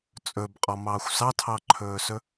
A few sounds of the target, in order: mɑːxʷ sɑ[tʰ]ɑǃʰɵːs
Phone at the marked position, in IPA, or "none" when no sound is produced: tʰ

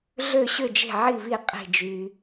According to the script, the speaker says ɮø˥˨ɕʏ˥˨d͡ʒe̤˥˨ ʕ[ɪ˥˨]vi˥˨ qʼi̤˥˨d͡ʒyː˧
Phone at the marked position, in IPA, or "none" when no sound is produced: i˥˨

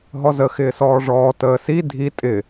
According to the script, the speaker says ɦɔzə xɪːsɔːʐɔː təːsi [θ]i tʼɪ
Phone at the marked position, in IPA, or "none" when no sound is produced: dʱ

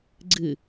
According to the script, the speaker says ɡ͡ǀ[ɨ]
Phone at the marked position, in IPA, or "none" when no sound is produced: ɨ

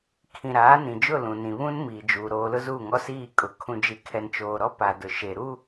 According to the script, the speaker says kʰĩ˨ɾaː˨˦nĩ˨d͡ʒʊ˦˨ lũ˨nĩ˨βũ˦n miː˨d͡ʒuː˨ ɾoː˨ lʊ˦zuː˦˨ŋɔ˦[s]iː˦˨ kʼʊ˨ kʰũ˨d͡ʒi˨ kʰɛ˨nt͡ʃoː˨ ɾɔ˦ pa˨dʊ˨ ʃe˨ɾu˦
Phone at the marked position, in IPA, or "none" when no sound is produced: s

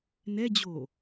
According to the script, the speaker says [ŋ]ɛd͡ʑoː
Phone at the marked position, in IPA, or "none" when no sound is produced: n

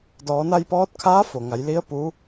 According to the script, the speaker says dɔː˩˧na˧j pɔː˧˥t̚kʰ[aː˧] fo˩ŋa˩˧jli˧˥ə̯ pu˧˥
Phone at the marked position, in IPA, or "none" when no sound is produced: aː˧˥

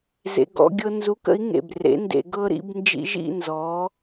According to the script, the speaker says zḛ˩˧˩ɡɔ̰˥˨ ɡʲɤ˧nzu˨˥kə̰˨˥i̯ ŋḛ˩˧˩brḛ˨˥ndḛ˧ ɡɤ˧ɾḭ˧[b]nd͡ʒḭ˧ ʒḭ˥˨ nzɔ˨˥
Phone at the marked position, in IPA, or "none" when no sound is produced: b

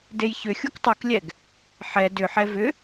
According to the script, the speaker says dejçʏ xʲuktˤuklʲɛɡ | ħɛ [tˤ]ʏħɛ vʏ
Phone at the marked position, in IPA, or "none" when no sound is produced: d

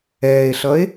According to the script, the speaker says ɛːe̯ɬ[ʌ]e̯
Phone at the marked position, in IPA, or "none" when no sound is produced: ʌ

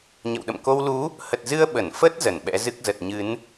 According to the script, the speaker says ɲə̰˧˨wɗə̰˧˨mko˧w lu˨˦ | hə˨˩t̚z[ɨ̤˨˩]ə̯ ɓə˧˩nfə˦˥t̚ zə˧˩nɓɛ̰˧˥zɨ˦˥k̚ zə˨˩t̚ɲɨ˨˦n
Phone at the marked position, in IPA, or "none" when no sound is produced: ɨ˧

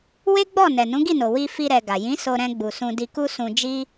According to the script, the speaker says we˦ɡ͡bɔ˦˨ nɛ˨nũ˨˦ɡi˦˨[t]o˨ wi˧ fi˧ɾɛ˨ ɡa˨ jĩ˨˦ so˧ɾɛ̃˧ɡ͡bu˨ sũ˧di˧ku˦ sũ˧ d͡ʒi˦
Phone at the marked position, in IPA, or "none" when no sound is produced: n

